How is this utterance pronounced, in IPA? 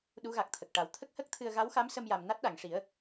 ɗ u˧˥ ɣ a˨˩ k̚ t̪ʰ ə˨˩ k̚ ʈ a˨˩ w t̪ʰ ə˦˥ k̚ h ə˦˥ k̚ t̪ʰ ɨ˧ ə̯ ɣ a˧˥ w x a˧˥ m s ə˧ m j a˨˩ m n a˦˥ t̚ ɗ a˨˩˨ ŋ ʂ i˨˩˦ ə̯

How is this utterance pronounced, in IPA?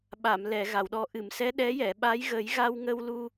ɓ a˨˩˨ m l ɛ˨˩˨ ɣ a˨˩˨ w ɗ ɔ˨˩ ʔ ɨ˨˩˨ m s ɛ˧˥ ɗ ɛ˧˥ j ɛ˨˩˨ ɓ a˧˥ j ɣ ə˨˩˦ j ɣ a˧ w ŋ ə˧ w l u˧

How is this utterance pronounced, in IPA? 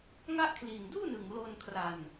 ŋ a˦˥ ʔ kʰ l i˨˩ n d uː˥˩ n ɯ˨˩ ŋ l o˧ n kʰ r a˧ n

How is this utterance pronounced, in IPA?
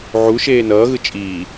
ʕ u ʃ eː n ʌː ɣ ɯ t͡ʃʼ iː

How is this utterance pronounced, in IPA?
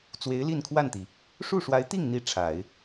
t͡s w e˧˥ ɪ̯ l i˥˧ n kʰ w a˥˩ n t̪ i˩ | ʂ u˥˩ ʂ w a˧˥ ɪ̯ t̪ i˥˩ ŋ n̪ i˧˥ ʈ͡ʂʰ a˨˩˦ ɪ̯

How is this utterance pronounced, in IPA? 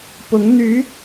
p ʊ˧˥ ŋ n̪ y˧˥

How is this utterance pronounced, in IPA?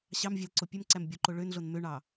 ɕ ɑ m vʲ æ l ǀ o pʲ ø m ǀ æ m bʲ o ǃ o ɭ ø n ɮ o n m ø ɳ ɑ

